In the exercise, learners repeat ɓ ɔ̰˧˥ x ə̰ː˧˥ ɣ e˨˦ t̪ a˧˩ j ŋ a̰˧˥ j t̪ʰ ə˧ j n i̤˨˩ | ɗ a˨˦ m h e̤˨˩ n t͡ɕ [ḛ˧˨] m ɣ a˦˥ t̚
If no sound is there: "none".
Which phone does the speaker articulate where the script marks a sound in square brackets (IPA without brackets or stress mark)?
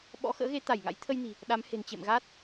ḛ˧˨